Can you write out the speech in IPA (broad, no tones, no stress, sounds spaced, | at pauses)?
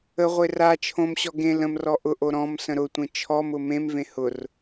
ə ʁʷ e r a t͡ʃʰ õ m ɕ ɔ ɡ ẽ l ə̃ m r ɔ ʔ ʊ ʔ o ɾ ɔ̃ m s ə̃ ɾ ʊ tʷ ẽ t͡ʃʰ ɔ m ʊ m ẽ m v ẽ h ʊ r